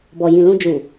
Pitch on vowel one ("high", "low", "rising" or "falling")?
low